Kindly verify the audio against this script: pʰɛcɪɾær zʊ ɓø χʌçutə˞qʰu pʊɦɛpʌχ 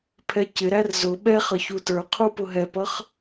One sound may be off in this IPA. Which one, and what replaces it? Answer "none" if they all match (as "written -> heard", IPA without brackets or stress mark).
ø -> ɛ